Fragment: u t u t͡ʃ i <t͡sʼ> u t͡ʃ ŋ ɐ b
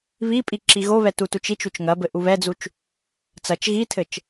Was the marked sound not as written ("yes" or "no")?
yes